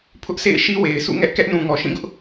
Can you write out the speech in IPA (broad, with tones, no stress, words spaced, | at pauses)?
pʰʊ˦ʔsʰḛ˦˨ɪ̯ʃi˦ we˨ɪ̯sṵ˦˨ŋɛ˦ʔ kɛ˦ʔnũ˨ŋɔ˨ ʃĩ˦˨ɡʊ˦ʔ